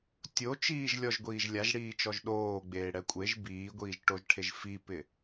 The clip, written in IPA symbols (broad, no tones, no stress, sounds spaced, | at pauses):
tʲ o t͡ʃ iː ʒ lʲ ɔ ʒ ɡʷ iː ʒ lʲ a ʒ ɽ iː t͡ʃ ɔ ʒ ɗ oː ɡ͡b eː ɽ ɛ kʷʼ e ʒ b iː ɡʷ iː ʒ ʈ o ʒ ʈʰ e ʒ f i p ɪ